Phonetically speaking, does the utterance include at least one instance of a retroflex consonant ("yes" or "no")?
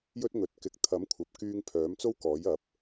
no